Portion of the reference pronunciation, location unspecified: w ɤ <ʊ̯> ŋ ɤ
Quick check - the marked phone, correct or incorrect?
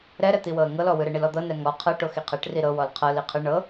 incorrect